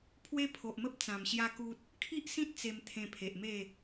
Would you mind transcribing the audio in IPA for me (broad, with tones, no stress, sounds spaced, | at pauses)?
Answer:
pʰ w e˦ pʰ o˨ ʔ m ə˦ p̚ t͡s ã˨˩ m ɕ j a˦ k u˦ t̚ | kʰ i˦ ʔ s ĩ˦ t̚ t͡s e˧ m t̪ʰ ẽ˧ pʰ e˨ ʔ m e˥˧